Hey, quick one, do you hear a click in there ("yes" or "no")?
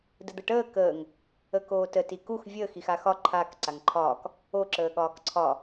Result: yes